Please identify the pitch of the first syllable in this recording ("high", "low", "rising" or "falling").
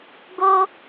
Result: high